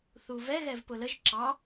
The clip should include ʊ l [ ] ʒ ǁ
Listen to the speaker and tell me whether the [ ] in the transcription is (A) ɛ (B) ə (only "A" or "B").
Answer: B